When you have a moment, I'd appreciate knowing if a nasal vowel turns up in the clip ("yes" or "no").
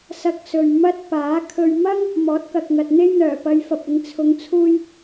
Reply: no